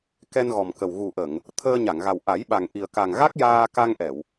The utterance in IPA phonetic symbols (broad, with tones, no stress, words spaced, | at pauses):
kɛ˧nɣɔ˨˩mkə˨˩w ɣu˨˩ʔə˨˩˨ŋ | t̪ʰəː˧ɲa˨˩˨ŋɣa˨˩w ʔa˨˩˦jɓa˨˩ŋ ʔi˨˩ə̯ka˨˩ŋɣa˦˥k̚ jaː˧ka˧ŋ ʔɛ˨˩˨w